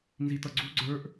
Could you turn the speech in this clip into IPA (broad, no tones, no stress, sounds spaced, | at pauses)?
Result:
n z i t ʌ ɡ͡ǀ u ɡ͡ǀ ə˞ ʔ